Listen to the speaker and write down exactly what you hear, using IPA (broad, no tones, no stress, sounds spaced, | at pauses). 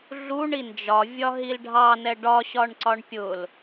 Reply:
ɮ u ɳ i n d͡ʒ ɒ vʲ ɒ ɦ i l ɖʱ ɑ n ɛ ɖ ɒ ɕ ɒ ɳ ǀ ɒ ɳ pʲ ʊ l